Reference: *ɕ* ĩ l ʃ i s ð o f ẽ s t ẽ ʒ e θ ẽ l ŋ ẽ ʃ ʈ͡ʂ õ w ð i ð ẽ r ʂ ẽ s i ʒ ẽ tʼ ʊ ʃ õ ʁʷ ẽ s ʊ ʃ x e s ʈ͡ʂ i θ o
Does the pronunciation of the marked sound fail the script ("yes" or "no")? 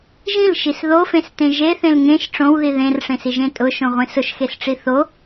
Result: yes